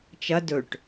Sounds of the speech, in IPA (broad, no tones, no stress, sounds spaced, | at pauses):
t͡ʃ ɐ d ɵ ʈ